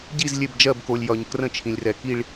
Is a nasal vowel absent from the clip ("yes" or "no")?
no